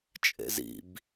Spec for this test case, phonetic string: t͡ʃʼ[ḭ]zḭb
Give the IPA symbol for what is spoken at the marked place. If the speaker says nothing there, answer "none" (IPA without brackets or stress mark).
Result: ḛ